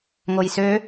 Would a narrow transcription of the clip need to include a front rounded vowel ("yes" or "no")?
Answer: yes